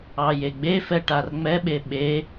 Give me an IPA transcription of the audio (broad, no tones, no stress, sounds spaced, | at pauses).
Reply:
ɑ j e ɡ͡b e f ɛ ʈ a r ŋ͡m ɛ ɓ e ɓ e